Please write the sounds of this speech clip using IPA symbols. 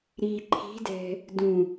ɾi ǃʰi̤dɛ̤ | dũ

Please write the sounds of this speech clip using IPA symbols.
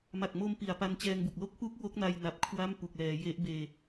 ma˨˩k̚mo˧m pi˨˩a̯pa˧nt͡ɕɛː˧ŋbu˨˩k̚ lo˦˥k̚pu˦˥k̚ wo˦˥k̚na˧jna˨˩p̚ kʰwa˥˩mpu˨˩k̚lɛː˩˦ je˦˥ʔbeː˧

